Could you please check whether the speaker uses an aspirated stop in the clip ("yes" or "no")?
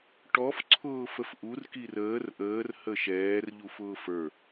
yes